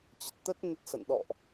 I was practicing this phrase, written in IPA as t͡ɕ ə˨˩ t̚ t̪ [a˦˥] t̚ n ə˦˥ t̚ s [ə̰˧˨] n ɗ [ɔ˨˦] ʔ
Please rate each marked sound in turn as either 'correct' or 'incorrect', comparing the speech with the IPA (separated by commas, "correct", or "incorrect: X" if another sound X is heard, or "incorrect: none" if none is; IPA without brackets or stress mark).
incorrect: ə˦˥, correct, incorrect: ɔ̰˧˨